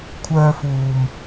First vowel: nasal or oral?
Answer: oral